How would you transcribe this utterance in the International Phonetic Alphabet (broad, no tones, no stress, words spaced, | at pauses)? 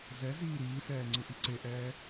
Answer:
zɛ ziːɾiːsɛː ŋ͡ǀɯʔiǀeʔɛː